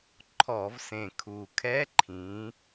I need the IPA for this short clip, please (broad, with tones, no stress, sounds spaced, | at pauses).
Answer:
ǃʰ ɔ˧˩˧ v s ẽ˨˩ kʰ u˨˩ kʰ ɛ˦˥ ǃʰ ĩ˨˦